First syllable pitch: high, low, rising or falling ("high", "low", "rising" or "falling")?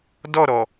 falling